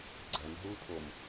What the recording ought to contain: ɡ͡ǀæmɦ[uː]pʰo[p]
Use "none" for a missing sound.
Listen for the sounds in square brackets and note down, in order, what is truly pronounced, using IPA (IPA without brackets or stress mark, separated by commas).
uː, m